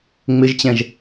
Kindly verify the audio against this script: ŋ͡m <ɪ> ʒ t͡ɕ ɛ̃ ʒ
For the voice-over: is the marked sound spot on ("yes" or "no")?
yes